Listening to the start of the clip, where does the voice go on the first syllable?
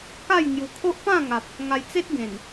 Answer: falling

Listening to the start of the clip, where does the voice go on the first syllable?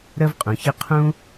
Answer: high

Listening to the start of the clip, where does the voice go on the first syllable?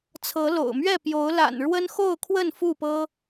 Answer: rising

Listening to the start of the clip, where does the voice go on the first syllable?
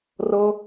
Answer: high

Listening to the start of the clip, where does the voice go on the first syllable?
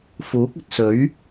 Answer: rising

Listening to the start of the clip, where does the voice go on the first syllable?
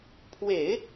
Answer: low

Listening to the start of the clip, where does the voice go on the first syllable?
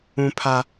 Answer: high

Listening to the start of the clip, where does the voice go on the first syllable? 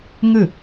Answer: falling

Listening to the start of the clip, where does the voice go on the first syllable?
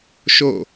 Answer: falling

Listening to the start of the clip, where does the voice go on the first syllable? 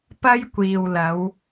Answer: high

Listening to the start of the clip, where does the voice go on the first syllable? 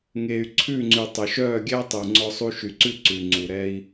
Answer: low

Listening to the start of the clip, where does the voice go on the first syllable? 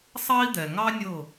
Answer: high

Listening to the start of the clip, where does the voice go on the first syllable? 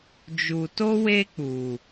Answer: low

